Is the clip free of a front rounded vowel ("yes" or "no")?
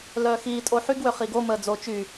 no